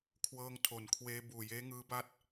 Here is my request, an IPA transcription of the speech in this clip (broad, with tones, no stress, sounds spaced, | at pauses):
kʰ w ɤː˧ ŋ tʰ o˩˦ n kʰ w eː˧ b uː˨˩ j eː˦˥ ŋ ɯː˦˥ b a˥˩ t̚